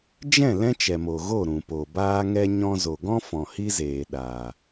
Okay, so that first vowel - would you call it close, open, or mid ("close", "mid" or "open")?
mid